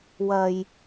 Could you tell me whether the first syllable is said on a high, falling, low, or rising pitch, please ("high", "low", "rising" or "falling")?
low